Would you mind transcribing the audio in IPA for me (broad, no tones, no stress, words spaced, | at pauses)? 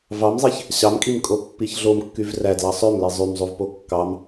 vɑmzˤeç | ɕɑmkʼim kʼopːiçɮom kːyvrædlɑ sˤømli zˤymzˤuvpo kːɑm